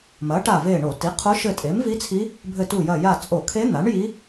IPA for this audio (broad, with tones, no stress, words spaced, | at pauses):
mɐ˩˥ʈa˧˩ve˧˩ ɳo˧˩˧ti˩˥qʰo˧˥ ʃɘ˧˩tʼe˩˥mvi˧˥t͡sʰi˧˥ | bʱɘ˧˩tu˧˩jɐ˧˩ ja˧˩t͡sʼo˧˩˧kʰe˧˥ n̪a˩˥ɳji˧˥